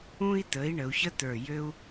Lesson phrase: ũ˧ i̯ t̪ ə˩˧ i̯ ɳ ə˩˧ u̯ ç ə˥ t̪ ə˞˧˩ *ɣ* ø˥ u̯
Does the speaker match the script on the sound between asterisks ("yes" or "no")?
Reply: no